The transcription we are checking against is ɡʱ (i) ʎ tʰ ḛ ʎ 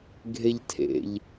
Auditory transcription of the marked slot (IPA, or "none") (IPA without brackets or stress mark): e